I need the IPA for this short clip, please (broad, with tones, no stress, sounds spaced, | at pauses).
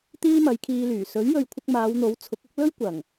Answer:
t̪ iː˥ m ɐ˨˧ j kʰ iː˧ l yː˨˩ s ɵ˨˥ ɥ j ɵ˨ ɥ kʷʰ ɪ˧ k̚ m aː˨˧ w n̪ o˨˥ w t͡sʰ ʊ˨˥ k̚ ʊ˥ k̚ l ɵ˥ ɥ kʷ ɐ˨˩ ŋ